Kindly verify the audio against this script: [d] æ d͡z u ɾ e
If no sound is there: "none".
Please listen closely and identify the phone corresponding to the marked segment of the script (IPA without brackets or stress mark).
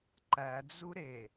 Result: ǃ